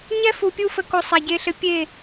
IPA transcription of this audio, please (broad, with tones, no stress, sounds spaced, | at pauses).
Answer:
ɲ ɛ˦ f u˨ pʲ u˧ f ə˨ k o˧ sˤ a˨ ɟ e˧ ɬ ɘ˧ pʲ e˦˨